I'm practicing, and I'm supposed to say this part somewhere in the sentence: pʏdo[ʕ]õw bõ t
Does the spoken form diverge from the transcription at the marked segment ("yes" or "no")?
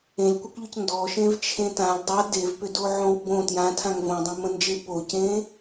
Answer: no